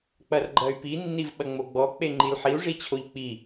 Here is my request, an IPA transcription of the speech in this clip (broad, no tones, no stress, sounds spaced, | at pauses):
k͡p ɐ r ɡ͡ǃ ɐ y̯ p i nː i v ɓ ɐ ŋ͡m o ɡ͡b ɔ k͡p e ŋ͡ǃ i l ħ i u̯ ʐ i t͡ɕʰ o ʎ k͡p i